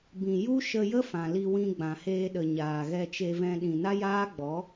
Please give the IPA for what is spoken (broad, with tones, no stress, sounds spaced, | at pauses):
b ĩ˨ j u˦ ʃ ə˧ j ə˦ f ã˨ l i˧ w ĩ˧ ɡ͡b ã˨ h eː˧ ɗ ə˨ ɲ aː˨ ɣ ɛ˧ t͡ʃ e˧ v ɛ̃˧ ɗ ĩ˨ n a˦ j aː˦ ɡ͡b ɔ˨˦